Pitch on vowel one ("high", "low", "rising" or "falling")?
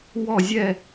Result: falling